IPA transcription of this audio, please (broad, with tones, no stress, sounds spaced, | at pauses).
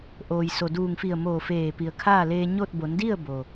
ʔ oː˩ j s o˩ d uː˧˩ ŋ f i˧˩ ə̯ m oː˧˩ f eː˧˩ p i˩ ə̯ kʰ aː˥˨ l eː˧ ɲ o˥˨ t̚ b o˩˧ n d i˥˨ ə̯ b o˩